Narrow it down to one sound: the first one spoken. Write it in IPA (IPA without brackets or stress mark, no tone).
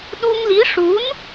ɗ